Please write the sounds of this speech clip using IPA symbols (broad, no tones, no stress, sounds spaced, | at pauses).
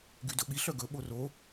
ɡ y d ɵ ɓ i ɬ œ ɡ ɵ ɓ o r o